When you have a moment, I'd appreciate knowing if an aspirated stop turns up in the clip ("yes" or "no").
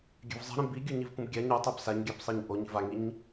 no